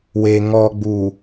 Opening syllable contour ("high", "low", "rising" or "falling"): high